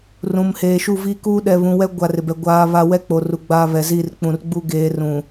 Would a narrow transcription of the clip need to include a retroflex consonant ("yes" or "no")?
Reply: no